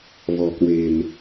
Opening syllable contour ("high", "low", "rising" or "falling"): low